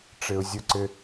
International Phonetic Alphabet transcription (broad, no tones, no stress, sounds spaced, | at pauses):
ʈ͡ʂ ɘ ʊ̯ zʲ ʊ ǀ ɘ